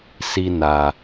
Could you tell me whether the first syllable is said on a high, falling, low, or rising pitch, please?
high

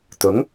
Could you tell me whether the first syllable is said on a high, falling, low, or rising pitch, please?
rising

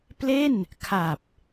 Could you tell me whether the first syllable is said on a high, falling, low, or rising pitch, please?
falling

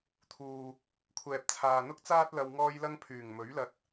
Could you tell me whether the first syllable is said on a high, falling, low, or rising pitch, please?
low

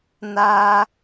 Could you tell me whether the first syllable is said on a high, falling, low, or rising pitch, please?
high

